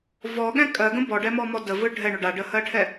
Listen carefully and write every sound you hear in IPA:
v ɔ ɠ ɛ̃ kʼ ɜ ɡ ə̃ b ɔ ɖ ɛ m ɔ m ɔ d ə v ɯ ɖʱ ɛ ɳ ʏ ɖ a ɖ ə h ɜ ʈʰ ɛ

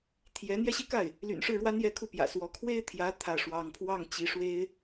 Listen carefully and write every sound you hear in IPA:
t̪ʰ j ɛ˧˥ n̪ j ɛ˥˧ ɕ i˥˧ k a˥˩ ɪ̯ | l y̰˨˩ n ʂ ɻ̩˥˩ ɻ w a˥ n j ɛ˥˧ kʰ u˥˩ p j ä̰˨˩ s w ɔ˧˥ kʰ w e˥ ɪ̯ t̪ʰ j ä˧˥ t̪ʰ ä˥˩ ʂ w ɑ˥ ŋ pʰ w ɑ˥˩ ŋ t͡ɕ i˧˥ ʂ w e˥ ɪ̯

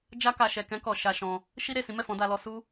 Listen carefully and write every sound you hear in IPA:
d͡ʒ a˧ k a˨ ʃ ɛ˨ k ɛ̃˧ k ɔ˨ ʃ a˧ ʃ ɔ̃˧ | ʃ i˦ ɾ e˦˨ s ĩ˨˦ m ɛ˦˨ f ɔ̃˨˦ d a˧ l ɔ˧ s u˦

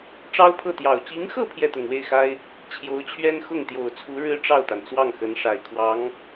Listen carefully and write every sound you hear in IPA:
ʈ͡ʂ ɑ˥ ʊ̯ pʰ ɤ˥˩ t̪ j ɑ˨˩ ʊ̯ t͡ɕ i˧˥ ŋ x ɤ˥˧ pʰ j ɛ˥˩ t̪ ʊ˨˩ ŋ w e˥˩ ɪ̯ x a˥ ɪ̯ | t͡ɕʰ j o˧˥ ʊ̯ t͡ɕʰ ɥ ɛ˥ n x ʊ˥˩ ŋ t̪ j o˨˩ ʊ̯ t͡sʰ u˧˥ ɻ ɻ̩˥ ʈ͡ʂ ɑ˥˩ ʊ̯ t̪ a˩ n t͡s w ɑ˥˩ ŋ x ə˧˥ n ʂ a˨˩ ɪ̯ kʰ w ɑ˧˥ ŋ

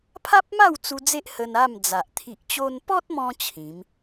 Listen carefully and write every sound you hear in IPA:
pʰ a˦ p̚ m a˥˧ w t͡s u˧ d͡z e˦ ʔ h ə˧ n a˥˧ m d͡z a˨ ʔ t̪ʰ i˨ ʔ t͡ɕ o˧ n p ɔ˦ t̚ m ɔ̃˧ t͡ɕʰ ĩ˨˦ m

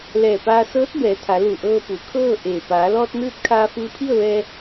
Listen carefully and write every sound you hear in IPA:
l ɛː˧˩ p aː˧ s ɤː˧˥ t̚ b ɛː˩˧ t̪ʰ a˩˧ l u˧˩ ʔ ɤː˧ p u˩˧ kʰ ɤː˥˨ ʔ eː˧˩ p aː˩˧ l ɔː˧ t̚ n ɯː˧˥ t̚ kʰ aː˧ f ɯː˧ pʰ i˥˨ ə̯ ʋ ɛː˧

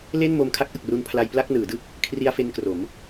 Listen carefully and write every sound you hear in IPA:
l e˥˩ n m o˧ m kʰ a˦˥ k̚ ʔ ɯ˨˩ k̚ r u˧ n pʰ l a˧ j p l a˥˩ k̚ n ɯː˩˦ d ɯ˥˩ k̚ | kʰ r i˧ a̯ f e˧ n k r o˩˦ m

